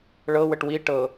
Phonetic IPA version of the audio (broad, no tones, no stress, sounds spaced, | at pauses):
ɭ ɤ w ə ʈ w i ʈ ɤ